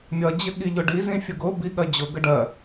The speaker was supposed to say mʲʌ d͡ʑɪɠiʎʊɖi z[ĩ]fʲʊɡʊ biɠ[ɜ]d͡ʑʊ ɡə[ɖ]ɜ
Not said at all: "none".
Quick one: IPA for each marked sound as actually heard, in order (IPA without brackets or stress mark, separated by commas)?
ĩ, ɜ, ɖ